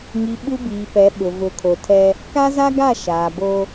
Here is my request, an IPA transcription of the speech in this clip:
ŋi˨ ɓu˦biː˨pɛ˨˦ ɓʊ˨ vʊ˨˦kʰo˨tʰɛ˦ | ka˦za˦ɡa˦˨ ʃaː˨bo˦

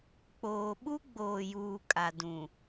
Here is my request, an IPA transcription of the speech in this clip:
k͡poː˨ ɓu˦ɡ͡boː˨juː˨ kʼa˨ dũ˨

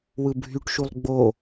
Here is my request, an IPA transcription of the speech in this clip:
wɯbʱyʈʃulˠ ɡ͡bo

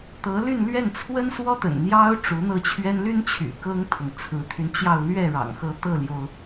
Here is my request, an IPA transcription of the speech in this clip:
t̪ɤ˧˥ly˥˧nlɥɛ˥˩n t͡sʰwə˥nswɔ˥t̪ə̰˨˩n n̪jɑ˥ʊ̯ ʈ͡ʂu˧˥n̪ɤ˥˩t͡ɕʰɥɛ˥n ly˥nt͡ɕʰy̰˨˩ kɤ˥ŋt̪ʰɤ˨ŋ t͡sʰɹ̩˧˥t̪ʰy˧nt͡ɕjɑ˥˧ʊ̯ lɥɛ˥˩ɻɑ̰˨˩ŋxɤ˧˥ t̪ɤ˥˩ljo˩ʊ̯

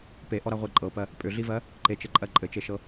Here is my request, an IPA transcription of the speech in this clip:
peʔɔɾaʁʷe ǃʼɤpɜ | pʼʏɮivɜ | ǃet͡ʃɘǃʼɜ ǃʼɘt͡ʃeʃɤ

